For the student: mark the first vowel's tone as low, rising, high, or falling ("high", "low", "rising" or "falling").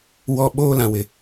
low